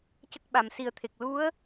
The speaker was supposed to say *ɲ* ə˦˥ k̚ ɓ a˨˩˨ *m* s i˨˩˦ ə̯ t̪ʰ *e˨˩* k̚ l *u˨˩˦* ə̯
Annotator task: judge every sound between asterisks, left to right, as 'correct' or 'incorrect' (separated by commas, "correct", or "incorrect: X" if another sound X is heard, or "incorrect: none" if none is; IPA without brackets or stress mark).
incorrect: c, correct, correct, incorrect: u˧˥